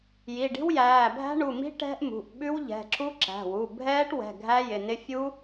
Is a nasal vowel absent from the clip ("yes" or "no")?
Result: yes